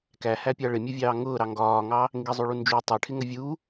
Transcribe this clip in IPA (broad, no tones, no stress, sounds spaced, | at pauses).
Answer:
k æ h æ pʲ ɑ ɭ ɪ mʲ u vʲ ɑː ŋ ʊː ɾ ɑ ŋ ɡ ɒː ŋ ɑ | ŋ ɡ i zˤ u ɭ u n d͡ʒ u tˤ ɑ ʈʰ ɪ ŋ ə vʲ u